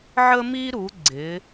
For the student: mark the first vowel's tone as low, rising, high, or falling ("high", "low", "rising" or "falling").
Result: high